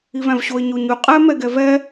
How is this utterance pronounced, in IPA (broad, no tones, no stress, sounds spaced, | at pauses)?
i v æ̃ v ɕ o ɪ̯ ɲ o ɲ ʉ qʼ ɛ m ɛ ɡ ɛ v ɛ